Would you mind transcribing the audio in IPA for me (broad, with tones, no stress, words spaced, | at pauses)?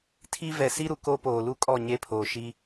tʰi˦ vɛ˨si˦ɾu˨ ko˦poː˨lu˦kʼɔ˦˨ ɲe˦pʰoː˨ʃi˦